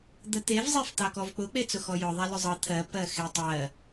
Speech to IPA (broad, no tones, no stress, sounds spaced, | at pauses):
d̪ ə t̪ e v zˤ e f t̪ ɑ k ɔ v k͡p ʊ k͡p e t͡s ʊ x ɔ j ʊ ðˤ a l ʊ zˤ ɤ t̪ʰ ɜ p ɜ x e tˤ ɜ